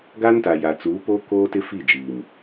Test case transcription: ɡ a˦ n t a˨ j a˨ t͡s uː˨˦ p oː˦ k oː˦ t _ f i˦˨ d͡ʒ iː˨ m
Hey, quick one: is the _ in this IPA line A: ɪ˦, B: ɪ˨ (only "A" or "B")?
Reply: A